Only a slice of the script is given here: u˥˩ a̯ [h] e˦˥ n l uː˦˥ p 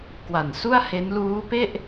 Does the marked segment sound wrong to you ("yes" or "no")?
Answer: no